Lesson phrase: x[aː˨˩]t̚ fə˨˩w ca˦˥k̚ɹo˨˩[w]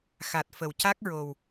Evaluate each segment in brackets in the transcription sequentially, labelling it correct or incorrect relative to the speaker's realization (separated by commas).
incorrect, correct